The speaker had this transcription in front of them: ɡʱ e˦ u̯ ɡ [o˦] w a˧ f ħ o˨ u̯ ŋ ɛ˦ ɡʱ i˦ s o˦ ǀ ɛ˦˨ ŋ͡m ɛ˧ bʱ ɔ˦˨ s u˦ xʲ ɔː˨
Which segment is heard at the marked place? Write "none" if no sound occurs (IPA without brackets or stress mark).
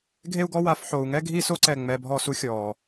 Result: ɔ˦